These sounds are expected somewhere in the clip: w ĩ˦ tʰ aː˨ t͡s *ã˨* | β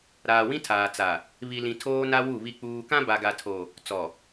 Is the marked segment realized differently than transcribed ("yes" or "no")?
yes